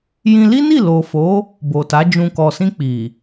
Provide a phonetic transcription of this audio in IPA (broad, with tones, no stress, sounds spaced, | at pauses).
j ĩ˧ l i˦ n i˦˨ l o˨ f o˨˦ | b o˨ t a˨˦ d͡ʒ ũ˧ k ɔ˨ s ĩ˧ k͡p i˨